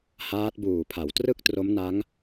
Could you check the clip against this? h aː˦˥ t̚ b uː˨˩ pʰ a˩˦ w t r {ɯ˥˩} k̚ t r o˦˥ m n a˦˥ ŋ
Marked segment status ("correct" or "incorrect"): correct